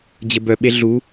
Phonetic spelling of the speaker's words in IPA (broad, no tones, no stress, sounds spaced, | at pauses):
d͡ʑ ə b œ ɓ e ɮ u